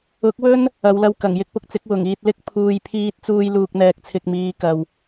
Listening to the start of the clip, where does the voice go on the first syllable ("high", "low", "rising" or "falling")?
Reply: rising